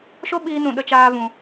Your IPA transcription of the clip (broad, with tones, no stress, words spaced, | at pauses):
ʃo˦ ɓiː˦nũ˧ ɗə˦t͡ʃaː˦vũ˧